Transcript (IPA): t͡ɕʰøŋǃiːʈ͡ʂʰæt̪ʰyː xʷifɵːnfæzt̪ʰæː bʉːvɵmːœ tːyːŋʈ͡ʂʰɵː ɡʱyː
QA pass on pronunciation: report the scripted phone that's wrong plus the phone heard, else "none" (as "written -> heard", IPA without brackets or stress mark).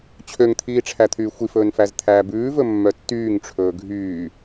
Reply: ǃ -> t̪ʰ